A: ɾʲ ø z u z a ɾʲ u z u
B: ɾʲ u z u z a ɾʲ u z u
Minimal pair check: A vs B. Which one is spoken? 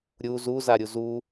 B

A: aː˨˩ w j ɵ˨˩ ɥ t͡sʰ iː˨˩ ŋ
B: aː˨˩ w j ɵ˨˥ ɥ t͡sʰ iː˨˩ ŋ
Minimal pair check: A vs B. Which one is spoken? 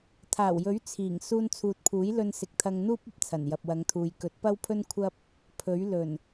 B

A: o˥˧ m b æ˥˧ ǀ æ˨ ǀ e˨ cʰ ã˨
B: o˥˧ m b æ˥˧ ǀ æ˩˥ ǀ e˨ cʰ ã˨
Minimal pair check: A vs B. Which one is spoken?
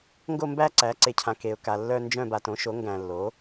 B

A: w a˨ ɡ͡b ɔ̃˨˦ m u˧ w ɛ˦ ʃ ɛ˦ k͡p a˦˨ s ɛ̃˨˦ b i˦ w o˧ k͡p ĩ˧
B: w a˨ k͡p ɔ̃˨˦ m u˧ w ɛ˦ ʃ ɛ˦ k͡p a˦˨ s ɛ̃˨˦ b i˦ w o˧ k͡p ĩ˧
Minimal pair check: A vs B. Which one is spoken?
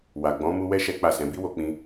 A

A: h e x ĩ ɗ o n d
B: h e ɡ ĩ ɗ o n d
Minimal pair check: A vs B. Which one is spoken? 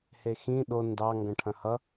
A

